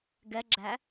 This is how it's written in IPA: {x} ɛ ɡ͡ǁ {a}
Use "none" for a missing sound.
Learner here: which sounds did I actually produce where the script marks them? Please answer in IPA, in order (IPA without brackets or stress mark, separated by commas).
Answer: ɡ, æ